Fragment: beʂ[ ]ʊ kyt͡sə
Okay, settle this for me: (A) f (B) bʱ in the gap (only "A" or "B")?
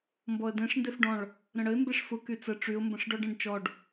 A